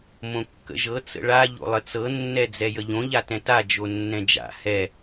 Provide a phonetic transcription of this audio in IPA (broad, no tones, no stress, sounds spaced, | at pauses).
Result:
m õ kː ə̰ ʒ ɤ t͡s ə̰ ɭ a ʎ o̰ lˠ ə t͡s ɤ nː ɛ d͡z ɛ j ə ʎ õ ʎ a t ɛ̃ t a d͡ʒ o nː ɛ̃ d͡ʒ a̰ h ɛ